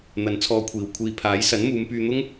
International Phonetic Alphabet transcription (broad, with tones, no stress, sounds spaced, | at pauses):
n̪ ɐ˨ n t͡sʰ ɔː˧ kʷʰ iː˨˩ w kʷʰ iː˨ pʰ aː˨˥ j s ɐ˨˥ n m uː˨˧ m p yː˧ n̪ ʊ˥ ŋ